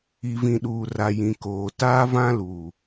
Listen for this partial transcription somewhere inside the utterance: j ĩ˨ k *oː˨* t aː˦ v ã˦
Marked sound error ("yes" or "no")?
no